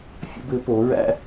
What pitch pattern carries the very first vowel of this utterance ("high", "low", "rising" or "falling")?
high